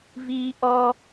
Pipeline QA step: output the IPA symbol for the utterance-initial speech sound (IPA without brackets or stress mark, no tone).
v